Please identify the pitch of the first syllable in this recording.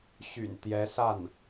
low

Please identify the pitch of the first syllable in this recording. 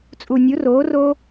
low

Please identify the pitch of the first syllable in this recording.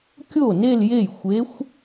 falling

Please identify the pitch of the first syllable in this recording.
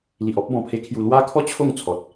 low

